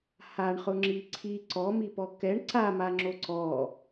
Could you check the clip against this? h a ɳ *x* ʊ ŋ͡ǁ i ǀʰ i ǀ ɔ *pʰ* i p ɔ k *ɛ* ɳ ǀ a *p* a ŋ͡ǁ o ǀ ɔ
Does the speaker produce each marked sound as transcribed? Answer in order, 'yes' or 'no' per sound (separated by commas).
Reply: no, no, yes, no